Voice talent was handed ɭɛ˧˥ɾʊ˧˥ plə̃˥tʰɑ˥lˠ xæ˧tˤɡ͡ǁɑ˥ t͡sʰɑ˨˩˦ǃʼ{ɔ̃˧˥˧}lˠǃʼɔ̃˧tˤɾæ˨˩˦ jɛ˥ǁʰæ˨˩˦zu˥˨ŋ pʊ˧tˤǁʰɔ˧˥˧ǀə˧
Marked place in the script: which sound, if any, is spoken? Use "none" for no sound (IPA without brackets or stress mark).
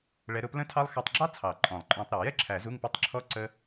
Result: ɔ̃˨˩˦